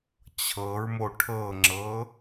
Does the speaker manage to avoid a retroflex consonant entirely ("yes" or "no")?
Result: no